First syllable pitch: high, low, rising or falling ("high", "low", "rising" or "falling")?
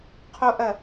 high